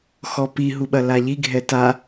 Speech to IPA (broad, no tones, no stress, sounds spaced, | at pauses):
x ɔ p i ɦ u ɓ ɐ l a ʎ i ɡʱ ɛ t a